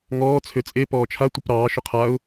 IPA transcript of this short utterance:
ŋ ɔː t͡sʰ ø t͡sʼ e p ɔː t͡ʃʰ a tʷ ɨ p ɾ ɑː ʃ ʏ qʰ a ʊ̯

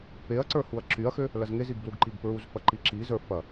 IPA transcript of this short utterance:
p e ɐ̯ ǀ ə˞ h u ɐ̯ ǁ y ɐ̯ x ø | l ɐ z ŋ e z i ɡ b l u ɡ ǃ i ɡ p ɹ u z f ɐ ǃ i ǁ i z ə˞ f ɐ

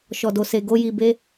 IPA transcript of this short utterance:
ʃ ɔ˨ d o˨ s e˨ ɡ o˧ j i˨ b e˧

